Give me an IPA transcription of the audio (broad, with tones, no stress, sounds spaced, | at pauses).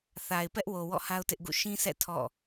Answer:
θ a˨ ɪ̯ p ɛ˦ ʔ w o˨ w ɔ̰˦˨ h a˦ ʊ̯ t ɪ˦ ʔ ɡ ṵ˦˨ ʃ ĩ˦ sʰ ɛ̰˦˨ tʰ ɔ̰˦˨